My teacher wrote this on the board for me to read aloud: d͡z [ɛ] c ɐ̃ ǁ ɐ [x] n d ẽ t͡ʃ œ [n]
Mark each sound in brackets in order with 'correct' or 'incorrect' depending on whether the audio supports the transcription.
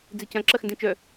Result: incorrect: e, correct, incorrect: none

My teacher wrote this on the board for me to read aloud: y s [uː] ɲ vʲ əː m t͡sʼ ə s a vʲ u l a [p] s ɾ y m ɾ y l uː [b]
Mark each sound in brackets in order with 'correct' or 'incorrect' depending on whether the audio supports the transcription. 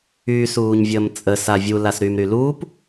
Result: correct, incorrect: none, incorrect: p

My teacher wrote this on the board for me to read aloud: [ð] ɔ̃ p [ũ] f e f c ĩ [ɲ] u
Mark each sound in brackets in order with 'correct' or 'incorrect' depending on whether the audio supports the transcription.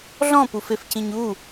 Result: incorrect: ɮ, incorrect: u, correct

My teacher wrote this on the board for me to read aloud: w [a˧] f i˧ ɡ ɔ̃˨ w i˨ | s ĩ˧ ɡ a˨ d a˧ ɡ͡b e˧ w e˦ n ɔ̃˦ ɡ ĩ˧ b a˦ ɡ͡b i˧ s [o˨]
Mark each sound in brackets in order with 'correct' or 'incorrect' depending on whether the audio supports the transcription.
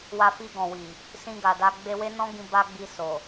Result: correct, correct

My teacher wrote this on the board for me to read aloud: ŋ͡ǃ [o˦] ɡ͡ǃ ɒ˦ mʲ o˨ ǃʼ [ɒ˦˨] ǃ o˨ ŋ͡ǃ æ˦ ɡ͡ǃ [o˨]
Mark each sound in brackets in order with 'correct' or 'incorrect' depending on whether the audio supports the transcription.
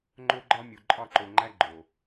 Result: correct, correct, correct

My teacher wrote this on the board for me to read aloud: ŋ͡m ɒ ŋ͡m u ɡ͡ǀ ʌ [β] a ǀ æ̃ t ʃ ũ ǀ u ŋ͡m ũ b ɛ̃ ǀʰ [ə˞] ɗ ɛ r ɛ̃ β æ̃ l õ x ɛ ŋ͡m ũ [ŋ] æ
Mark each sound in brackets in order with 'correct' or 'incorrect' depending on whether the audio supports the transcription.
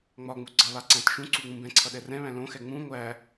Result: correct, incorrect: ʌ, incorrect: ŋʷ

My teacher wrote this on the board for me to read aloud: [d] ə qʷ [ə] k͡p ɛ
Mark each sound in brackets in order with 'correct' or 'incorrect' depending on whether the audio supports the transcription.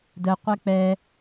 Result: correct, incorrect: ɛ

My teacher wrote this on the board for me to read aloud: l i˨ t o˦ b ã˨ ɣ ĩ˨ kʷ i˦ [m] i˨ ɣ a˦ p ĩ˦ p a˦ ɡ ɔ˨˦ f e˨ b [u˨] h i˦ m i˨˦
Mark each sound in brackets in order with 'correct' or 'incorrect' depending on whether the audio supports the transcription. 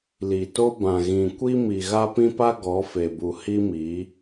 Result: correct, correct

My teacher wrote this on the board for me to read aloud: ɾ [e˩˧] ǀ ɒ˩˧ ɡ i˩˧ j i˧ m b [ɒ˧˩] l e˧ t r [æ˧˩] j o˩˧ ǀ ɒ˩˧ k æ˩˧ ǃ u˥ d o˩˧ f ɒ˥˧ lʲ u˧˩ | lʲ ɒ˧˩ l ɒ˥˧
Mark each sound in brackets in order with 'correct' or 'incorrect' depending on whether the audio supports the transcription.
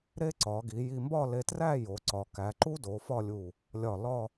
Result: incorrect: e˥, incorrect: ɒ˥˧, incorrect: æ˥˧

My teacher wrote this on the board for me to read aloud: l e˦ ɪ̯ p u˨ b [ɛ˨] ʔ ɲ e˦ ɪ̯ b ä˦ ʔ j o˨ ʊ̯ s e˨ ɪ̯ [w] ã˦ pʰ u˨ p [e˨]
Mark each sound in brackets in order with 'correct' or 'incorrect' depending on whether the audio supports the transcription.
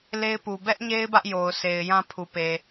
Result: incorrect: ɛ˦, incorrect: j, correct

